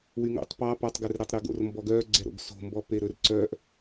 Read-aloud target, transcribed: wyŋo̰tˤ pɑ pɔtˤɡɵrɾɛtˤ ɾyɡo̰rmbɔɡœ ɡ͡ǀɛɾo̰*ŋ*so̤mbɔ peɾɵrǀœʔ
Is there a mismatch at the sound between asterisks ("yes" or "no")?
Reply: yes